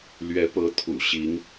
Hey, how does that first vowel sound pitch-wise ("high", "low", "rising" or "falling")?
rising